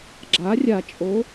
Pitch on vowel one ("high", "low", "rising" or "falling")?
rising